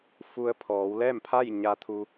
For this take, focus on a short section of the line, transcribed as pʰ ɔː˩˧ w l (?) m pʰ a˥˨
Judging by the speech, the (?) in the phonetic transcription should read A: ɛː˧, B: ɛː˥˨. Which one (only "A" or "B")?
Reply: B